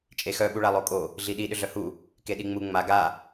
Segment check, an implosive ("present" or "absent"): present